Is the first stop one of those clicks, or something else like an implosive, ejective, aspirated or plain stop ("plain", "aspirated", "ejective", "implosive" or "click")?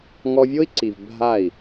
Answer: click